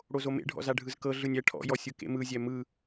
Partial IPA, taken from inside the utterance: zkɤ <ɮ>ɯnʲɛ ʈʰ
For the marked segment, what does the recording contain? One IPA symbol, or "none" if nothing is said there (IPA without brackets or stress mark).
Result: ɮ